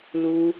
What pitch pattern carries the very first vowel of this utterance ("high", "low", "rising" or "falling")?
high